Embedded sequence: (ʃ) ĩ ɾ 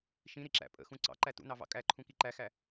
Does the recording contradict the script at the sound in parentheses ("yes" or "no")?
no